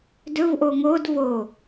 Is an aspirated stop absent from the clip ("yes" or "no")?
yes